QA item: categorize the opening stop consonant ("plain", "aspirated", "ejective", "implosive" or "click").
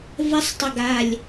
plain